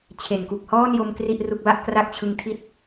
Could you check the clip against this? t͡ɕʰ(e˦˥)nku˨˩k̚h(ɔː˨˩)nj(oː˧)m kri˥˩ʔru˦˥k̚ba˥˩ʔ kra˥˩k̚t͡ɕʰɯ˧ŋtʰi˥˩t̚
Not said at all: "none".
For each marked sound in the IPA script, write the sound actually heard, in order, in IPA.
e˨˩, ɔː˥˩, o˧

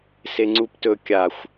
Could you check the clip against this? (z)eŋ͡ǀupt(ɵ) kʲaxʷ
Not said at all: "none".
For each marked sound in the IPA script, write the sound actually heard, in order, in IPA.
s, ɵ

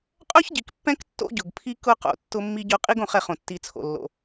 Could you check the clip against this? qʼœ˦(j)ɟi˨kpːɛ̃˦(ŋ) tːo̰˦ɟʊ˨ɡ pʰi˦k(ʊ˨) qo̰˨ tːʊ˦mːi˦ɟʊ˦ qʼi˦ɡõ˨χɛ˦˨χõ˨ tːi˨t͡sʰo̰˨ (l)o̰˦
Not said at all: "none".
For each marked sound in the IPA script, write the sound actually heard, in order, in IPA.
ç, k, ʊ˦, lː

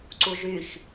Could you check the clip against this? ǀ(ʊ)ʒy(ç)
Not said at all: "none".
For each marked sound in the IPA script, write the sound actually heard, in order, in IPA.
u, ç

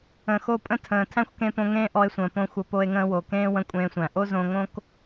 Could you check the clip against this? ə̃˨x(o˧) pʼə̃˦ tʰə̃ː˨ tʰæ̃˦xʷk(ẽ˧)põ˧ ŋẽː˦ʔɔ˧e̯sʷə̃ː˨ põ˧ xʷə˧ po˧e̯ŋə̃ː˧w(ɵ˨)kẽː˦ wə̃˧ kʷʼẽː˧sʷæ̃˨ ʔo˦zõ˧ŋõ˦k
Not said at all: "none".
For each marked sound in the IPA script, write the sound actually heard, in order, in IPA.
o˧, ẽ˧, o˨

